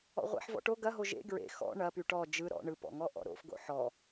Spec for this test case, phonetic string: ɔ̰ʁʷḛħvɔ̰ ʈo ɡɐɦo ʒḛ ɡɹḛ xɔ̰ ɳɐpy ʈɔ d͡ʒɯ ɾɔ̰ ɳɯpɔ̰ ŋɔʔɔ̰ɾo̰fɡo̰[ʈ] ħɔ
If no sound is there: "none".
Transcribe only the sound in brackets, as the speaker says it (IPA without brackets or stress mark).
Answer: none